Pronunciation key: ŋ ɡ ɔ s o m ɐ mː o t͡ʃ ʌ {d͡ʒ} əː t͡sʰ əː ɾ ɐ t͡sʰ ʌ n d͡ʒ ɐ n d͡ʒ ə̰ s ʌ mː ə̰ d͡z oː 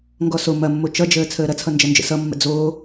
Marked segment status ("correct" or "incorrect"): correct